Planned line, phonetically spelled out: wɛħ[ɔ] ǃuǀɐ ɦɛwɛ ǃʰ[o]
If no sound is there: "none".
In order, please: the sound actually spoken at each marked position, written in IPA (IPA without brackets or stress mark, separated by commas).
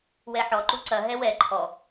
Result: ɔ, ɔ